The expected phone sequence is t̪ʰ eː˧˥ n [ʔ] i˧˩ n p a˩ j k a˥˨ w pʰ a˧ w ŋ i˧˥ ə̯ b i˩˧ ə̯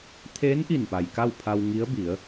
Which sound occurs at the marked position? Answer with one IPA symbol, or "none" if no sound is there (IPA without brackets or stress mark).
ʔ